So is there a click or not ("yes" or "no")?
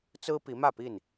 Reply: no